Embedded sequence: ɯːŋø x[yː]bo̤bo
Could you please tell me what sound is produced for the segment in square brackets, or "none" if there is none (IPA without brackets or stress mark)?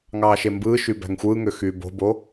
yː